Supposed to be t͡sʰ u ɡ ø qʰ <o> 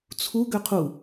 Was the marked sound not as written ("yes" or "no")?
yes